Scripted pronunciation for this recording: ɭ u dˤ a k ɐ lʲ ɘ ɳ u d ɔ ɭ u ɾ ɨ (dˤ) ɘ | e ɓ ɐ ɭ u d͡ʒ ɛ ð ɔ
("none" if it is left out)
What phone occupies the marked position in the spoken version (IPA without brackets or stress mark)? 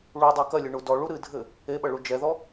dʱ